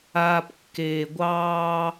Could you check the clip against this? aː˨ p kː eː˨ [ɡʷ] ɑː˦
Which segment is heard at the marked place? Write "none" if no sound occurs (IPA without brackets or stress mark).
ɡʷ